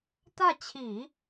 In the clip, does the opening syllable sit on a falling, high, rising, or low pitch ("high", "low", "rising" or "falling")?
falling